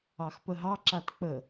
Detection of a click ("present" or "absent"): present